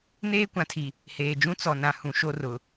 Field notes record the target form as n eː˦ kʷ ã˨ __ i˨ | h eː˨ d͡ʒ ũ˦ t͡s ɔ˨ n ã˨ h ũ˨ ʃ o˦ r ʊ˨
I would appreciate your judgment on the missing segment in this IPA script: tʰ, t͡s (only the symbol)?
tʰ